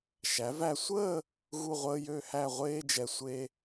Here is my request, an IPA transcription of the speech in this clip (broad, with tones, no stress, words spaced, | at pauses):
ʃæ˩˧væ˧sʷəː˥˧ | ɣu˥˧ʁʷəː˥jø˥˧hæ˥˧ ʁʷeː˥d͡ʒɛ˧sʷe˥